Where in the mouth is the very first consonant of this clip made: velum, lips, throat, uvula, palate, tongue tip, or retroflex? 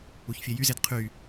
palate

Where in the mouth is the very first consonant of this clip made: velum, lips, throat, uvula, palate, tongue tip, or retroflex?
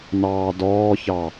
tongue tip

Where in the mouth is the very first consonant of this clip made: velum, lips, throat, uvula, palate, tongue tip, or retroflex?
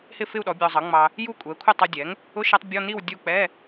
throat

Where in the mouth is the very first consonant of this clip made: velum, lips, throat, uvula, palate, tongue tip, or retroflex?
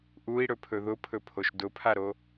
throat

